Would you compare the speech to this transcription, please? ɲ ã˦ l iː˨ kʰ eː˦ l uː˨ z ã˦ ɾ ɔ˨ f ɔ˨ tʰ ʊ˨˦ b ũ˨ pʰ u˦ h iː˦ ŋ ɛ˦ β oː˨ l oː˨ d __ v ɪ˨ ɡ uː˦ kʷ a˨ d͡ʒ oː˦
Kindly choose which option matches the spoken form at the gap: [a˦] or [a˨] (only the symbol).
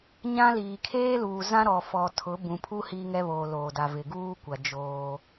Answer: a˨